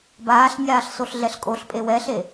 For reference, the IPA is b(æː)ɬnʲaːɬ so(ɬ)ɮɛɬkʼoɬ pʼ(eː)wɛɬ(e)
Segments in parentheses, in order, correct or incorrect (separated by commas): incorrect, correct, incorrect, correct